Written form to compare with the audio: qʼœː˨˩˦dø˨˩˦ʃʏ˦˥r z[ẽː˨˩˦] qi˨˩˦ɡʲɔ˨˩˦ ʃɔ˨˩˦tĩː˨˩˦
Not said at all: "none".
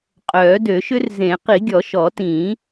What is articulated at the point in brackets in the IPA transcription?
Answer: ẽ˨˩˦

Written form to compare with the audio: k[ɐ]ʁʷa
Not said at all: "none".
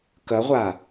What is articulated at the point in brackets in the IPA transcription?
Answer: ɐ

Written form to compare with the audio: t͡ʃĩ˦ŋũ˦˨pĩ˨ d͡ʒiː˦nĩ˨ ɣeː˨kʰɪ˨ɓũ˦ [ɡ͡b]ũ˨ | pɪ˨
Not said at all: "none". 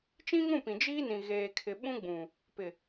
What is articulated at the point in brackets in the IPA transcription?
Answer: ɡ͡b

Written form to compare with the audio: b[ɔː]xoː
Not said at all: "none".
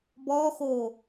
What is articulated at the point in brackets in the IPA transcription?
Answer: ɔː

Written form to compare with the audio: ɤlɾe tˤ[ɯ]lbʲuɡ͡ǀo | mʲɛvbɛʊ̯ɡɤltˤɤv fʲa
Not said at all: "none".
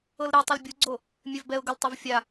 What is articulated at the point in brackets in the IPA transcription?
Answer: ɯ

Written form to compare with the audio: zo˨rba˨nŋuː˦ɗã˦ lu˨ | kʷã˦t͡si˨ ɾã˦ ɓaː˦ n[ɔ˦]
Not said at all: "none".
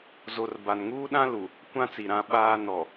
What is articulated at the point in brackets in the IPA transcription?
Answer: ɔ˨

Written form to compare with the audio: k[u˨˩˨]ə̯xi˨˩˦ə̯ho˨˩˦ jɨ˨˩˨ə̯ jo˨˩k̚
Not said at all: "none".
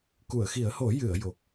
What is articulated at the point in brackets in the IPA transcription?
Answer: u˨˩˨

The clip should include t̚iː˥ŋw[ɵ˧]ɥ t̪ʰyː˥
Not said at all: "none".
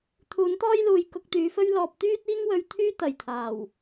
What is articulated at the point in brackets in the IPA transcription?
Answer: ɵ˧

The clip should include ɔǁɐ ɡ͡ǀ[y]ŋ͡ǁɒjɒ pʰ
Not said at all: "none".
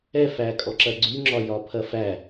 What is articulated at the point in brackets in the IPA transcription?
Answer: y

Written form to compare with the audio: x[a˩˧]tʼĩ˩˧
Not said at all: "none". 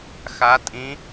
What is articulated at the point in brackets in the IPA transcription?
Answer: a˩˧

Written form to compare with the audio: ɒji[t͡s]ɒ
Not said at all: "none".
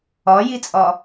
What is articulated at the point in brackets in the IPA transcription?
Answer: t͡sʼ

